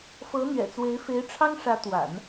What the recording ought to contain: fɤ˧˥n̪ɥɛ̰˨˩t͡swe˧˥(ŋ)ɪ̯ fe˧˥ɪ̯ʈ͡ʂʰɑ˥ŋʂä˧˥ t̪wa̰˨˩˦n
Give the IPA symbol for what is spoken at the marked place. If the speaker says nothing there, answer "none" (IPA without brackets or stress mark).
none